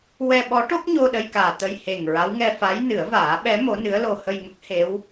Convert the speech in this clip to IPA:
wɛ˧ɓɔ˧˥ʈo˦˥k̚ɲo˧ ɗə˧jkaː˨˩ t̪ə˧j he˨˩ŋ ɹa˧˥wŋɛ˧ fa˧˥j nɨ˨˩˦ə̯vaː˨˩˦ɓɛ˧˥ mo˧˥nɨ˧˥ə̯lo˧ hə˧jŋə˦˥k̚ he˧˥w

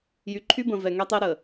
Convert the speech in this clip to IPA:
jy˨ǃʰy˦ bə̃˨ vɛ˨ŋɛ˦tˤe˦ ɾə˨

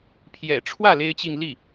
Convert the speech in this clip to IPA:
pʰjɛ̰˨˩ʈ͡ʂʰwä˥˩ le˥ɪ̯t͡ɕi˥˧ŋ li˥˩

